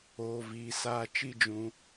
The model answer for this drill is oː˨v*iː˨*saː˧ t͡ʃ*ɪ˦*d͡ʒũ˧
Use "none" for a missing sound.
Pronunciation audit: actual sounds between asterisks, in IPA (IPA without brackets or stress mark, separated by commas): iː˨, i˦